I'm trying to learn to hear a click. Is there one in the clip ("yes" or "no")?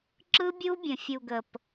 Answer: yes